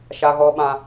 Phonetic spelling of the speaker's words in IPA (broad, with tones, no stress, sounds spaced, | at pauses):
ʃ a˦ ɣ ɔ˦ ɓ ã˦